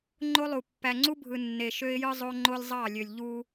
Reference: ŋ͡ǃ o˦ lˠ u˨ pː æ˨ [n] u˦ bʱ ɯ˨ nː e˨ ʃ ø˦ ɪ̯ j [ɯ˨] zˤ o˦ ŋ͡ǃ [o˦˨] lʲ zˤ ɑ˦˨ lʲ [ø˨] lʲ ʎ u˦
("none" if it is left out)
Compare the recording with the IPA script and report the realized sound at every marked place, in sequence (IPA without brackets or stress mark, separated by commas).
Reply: ŋ͡ǀ, ɯ˦, o˦, ø˨